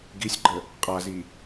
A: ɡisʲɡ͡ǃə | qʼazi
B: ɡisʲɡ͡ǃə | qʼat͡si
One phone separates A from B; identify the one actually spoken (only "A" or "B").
A